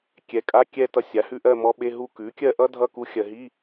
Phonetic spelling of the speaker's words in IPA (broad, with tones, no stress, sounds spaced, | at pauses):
kʲ ɛ˩˥ kʼ a˧˥˧ kʲ ɛ˥˧ t ʌ˧˥ sʲ a˩˥ h ʉ˧˥˧ ʔ ɜ˥˧ m ɔ˧˥ ɓ e˧˥˧ ɦ u˥˧ k ʉ˩˥ kʲ ɜ˥˧ ʔ ʌ˥ dʱ ʌ˥˧ k u˧˥ xʲ ɜ˨ ɦ i˧˥˧